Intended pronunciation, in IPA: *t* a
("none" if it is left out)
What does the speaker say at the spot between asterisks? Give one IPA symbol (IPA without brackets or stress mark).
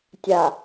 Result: tʲ